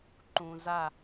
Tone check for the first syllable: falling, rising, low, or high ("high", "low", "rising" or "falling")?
low